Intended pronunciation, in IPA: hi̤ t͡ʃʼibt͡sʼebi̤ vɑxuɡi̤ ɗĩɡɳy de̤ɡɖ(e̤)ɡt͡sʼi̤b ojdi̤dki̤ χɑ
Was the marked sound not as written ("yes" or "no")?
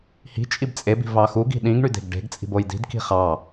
no